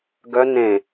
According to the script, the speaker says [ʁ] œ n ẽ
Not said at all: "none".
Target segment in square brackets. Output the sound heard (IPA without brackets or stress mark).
ɡ